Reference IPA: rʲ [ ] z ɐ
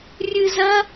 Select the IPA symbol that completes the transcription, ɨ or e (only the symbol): ɨ